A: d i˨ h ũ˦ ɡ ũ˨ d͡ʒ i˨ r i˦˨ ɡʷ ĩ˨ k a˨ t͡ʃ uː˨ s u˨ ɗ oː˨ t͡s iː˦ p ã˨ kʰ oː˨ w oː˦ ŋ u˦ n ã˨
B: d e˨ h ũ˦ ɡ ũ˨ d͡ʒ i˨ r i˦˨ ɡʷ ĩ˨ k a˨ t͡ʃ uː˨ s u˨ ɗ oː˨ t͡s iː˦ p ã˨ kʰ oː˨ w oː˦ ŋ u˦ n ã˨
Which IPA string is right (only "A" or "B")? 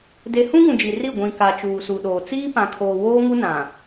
B